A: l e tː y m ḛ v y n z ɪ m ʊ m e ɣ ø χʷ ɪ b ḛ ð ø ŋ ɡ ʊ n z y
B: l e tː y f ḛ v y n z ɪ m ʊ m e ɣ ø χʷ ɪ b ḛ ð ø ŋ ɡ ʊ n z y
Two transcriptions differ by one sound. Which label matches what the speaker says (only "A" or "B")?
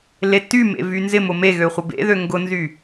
A